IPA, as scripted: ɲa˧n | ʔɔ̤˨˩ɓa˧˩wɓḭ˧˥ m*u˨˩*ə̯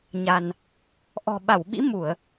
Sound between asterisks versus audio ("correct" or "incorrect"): incorrect